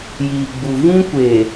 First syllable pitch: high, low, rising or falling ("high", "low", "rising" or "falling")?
low